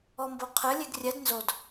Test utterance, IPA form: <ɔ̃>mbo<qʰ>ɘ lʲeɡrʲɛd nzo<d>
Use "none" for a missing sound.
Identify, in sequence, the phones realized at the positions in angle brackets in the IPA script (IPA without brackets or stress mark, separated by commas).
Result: ɔ, qʰ, d